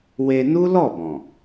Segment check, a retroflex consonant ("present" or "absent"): absent